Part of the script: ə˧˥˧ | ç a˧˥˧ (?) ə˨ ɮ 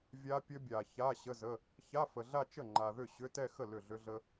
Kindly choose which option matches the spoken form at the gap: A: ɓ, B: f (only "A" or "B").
B